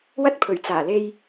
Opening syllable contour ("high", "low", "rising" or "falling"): high